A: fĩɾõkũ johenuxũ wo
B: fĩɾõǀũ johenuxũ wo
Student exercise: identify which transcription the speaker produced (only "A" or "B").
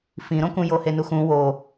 A